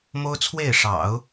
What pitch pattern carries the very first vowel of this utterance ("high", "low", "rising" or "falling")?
high